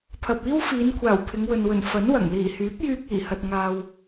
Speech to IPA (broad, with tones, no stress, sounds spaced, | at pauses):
pʰ ɐ˨ p̚ iː˥ w f iː˨˧ n kʷʰ aː˨˩ w pʰ ɪ˨˧ ŋ w ɵ˨ n w ɵ˨˩ n f ɐ˨˥ n w ɐ˨˩ ŋ l iː˨˩ h yː˨˥ p̚ j yː˧ k̚ iː˨˩ h ɐ˨ t̚ ŋ aː˨ w